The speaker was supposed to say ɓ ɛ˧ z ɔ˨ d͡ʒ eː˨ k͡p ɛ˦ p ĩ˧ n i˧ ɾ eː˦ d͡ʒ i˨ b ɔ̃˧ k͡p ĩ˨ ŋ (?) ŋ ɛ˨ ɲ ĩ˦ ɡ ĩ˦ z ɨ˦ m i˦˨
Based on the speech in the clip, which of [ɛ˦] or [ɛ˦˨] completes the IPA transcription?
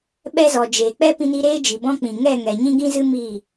ɛ˦˨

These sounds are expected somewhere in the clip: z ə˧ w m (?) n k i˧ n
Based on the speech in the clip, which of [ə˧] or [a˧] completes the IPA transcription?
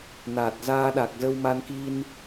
a˧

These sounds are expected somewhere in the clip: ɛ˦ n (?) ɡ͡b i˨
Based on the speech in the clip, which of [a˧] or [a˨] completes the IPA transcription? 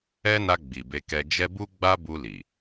a˧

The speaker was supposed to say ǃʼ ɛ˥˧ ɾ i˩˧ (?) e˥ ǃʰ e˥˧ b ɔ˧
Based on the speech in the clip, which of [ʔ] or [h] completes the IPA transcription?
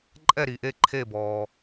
ʔ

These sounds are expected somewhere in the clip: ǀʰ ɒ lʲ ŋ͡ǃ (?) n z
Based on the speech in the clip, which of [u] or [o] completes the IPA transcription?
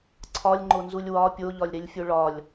o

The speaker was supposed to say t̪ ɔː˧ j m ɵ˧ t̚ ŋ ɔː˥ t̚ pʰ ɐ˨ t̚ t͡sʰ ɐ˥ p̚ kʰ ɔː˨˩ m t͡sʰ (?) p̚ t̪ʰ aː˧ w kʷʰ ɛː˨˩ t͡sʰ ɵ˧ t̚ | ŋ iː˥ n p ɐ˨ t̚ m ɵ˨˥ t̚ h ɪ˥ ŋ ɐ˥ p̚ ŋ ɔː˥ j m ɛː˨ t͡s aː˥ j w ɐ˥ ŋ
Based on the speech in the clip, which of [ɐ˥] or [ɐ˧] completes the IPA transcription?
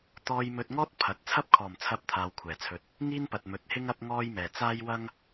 ɐ˧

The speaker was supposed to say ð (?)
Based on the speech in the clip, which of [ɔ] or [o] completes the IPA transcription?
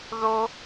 o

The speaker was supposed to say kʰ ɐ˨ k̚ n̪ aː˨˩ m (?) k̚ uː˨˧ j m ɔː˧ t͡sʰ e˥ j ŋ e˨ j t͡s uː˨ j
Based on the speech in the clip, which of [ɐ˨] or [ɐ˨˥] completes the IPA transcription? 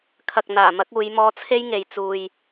ɐ˨˥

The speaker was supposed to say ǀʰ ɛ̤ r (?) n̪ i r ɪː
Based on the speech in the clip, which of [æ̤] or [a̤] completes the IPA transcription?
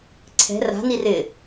a̤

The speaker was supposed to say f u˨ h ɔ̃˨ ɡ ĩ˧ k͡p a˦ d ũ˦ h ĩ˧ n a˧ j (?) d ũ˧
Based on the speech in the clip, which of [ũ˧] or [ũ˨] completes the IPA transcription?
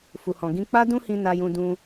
ũ˧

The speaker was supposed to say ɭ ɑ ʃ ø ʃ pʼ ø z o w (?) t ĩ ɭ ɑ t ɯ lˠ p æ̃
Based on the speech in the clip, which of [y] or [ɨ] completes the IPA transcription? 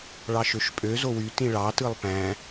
y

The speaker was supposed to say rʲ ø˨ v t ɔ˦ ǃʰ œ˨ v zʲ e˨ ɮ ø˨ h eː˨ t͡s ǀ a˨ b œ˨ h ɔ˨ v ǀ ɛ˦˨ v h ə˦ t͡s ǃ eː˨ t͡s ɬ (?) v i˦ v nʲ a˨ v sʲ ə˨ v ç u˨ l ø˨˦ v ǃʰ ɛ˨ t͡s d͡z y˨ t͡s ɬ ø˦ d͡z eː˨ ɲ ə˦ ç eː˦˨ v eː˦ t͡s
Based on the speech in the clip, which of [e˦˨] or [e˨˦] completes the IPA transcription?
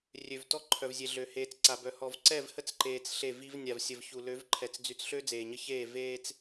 e˦˨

